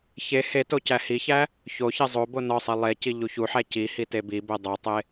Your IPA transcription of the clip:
ç e h e t o c æ h i ç æ | ç o ç e zˤ o b o n ɒ sˤ i lˠ e c i ʎ u ç u ħ æ c i h i t e b i b e dˤ o tˤ e

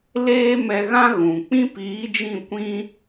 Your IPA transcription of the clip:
l eː˦ m ɛ˧ ɣ ã˦ ɣ ũ˨ k͡p ĩ˦ p iː˨˦ d͡ʒ ĩ˦˨ kʷ ĩ˦

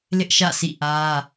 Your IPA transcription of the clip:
l ɪ˦ ʔ ʃ ä̰˦˨ s ḭ˦˨ ʔ ä˦

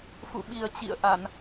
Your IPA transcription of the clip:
f ṵ˧˨ ɓ i˨˩ ə̯ t͡ɕ ḭ˧˨ ə̯ ʔ a˧˩˨ n

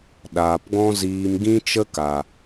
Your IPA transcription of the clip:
ɗ aː˨ p ɡ ɔ̃˦ z iː˧ m ɡ ĩ˦ t͡ʃ ə˦ k a˨

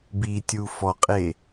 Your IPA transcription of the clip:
b i tʲ u f ɔ qʼ e

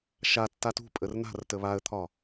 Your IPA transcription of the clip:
ʃ a tː a t ṳ pʼ ə r n a̤ r t ə β a ə̯ t̪ʰ ɒ

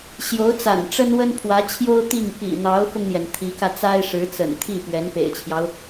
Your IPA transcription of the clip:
ɕ j o˧˥ ʊ̯ t͡s a̰˨˩ n ʈ͡ʂ ə˥ n w ə˥ n pʰ w ä˧˥ t͡ɕʰ j o˥ ʊ̯ t̪ i˥˩ ŋ p ḭ˨˩ n̪ ɑ˧˥ ʊ̯ f ʊ˧ ŋ n̪ j ɛ˩ n t̪ʰ i˧˥ k ä˧ t͡s a˥ ɪ̯ ʂ ɻ̩˧˥ t͡s ə̰˨˩ n t̪ʰ i˥˩ p ɥ ɛ˧˥ n p ḛ˨˩ ɪ̯ t͡ɕʰ j ɑ˦ ʊ̯

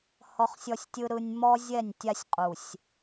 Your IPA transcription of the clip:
h ɔ˦ χ sʲ ɔ˦ sʲ tʲ ɯ˦ ɾ ɯ˦ nʲ m ɔ˦ zʲ ɛ˦˨ nʲ tʲ a˦ sʲ qʼ u˨ sʲ

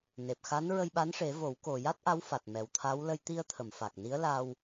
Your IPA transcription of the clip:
n e˨˩ p̚ x a˧˥ n ɹ ə˧ j ɓ a˧˥ n ʂ e˨˩˦ v o˨˩˦ w k o˨˩ j a˦˥ t̚ ʔ a˧˥ w f a˨˩ t̚ m ɛ˨˩ w t̪ʰ a˧˥ w l ə˧ j t̪ i˧ ə̯ t̪ʰ ə˨˩˨ m f a˨˩ k̚ n i˧˥ ə̯ l a˧ w

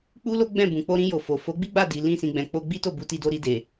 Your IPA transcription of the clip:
k͡p u˦ l o˦ ɡ͡b ɛ̃˦˨ b ũ˨ k͡p o˧ ɾ ĩ˧ j o˨ f o˨ f o˨˦ ɡ͡b i˦ ɡ͡b a˦˨ d i˨ l ĩ˧ s ĩ˨ ɡ͡b ɛ̃˨ k͡p o˧ ɡ͡b i˦ t o˦˨ b u˧ t i˧ d o˧ ɾ i˧ d e˨

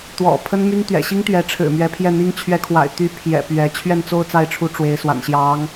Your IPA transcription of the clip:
t̪ w ɔ̰˨˩ pʰ ə˥ n m y˥ n t̪ ɥ ɛ̰˨˩ ɕ i˥ ŋ t̪ ɥ ɛ˧˥ ʈ͡ʂʰ ɻ̩˨˩ m ɥ ɛ˧˥ pʰ j ɛ˥˩ n̪ i˥ ŋ t͡ɕʰ ɥ ɛ˧˥ kʰ w a̰˨˩ ɪ̯ t̪ y˧˥ pʰ j ɛ̰˨˩ p ɥ ɛ˧˥ t͡ɕʰ ɥ ɛ˥˧ n t͡s o˥˧ ʊ̯ t͡s a˥˩ ɪ̯ ʈ͡ʂʰ u˧˥ ʈ͡ʂ w e˧˥ ɪ̯ s w a̰˨˩ n ɕ j ɑ˧˥ ŋ

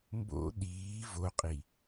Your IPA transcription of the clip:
m b o̰ ɗ iː v o qʼ i

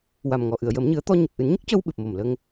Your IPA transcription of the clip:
w a˨˩ m ŋ ɔ˨˩ ʔ ɨ˨˩˨ ə̯ j əː˨˩˦ m ɲ ɨ˨˩˦ ə̯ t̪ ɔ˧ ɲ ə˨˩ k̚ ʔ ɨ˨˩˦ n ɲ ə˦˥ k̚ c əː˧ w ɓ ɨ˨˩ p̚ m o˨˩ m l ə˧ ŋ

